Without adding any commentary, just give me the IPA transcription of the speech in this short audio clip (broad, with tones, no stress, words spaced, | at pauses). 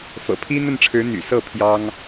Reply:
fɤ̰˨˩pʰi˥ n̪ə˥˩nʈ͡ʂʰɻ̩˧˥ n̪y̰˨˩ sɤ˥˩ pʰjɑ˥ŋ